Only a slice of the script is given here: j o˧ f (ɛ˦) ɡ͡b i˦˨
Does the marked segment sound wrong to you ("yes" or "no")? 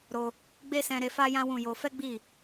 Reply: no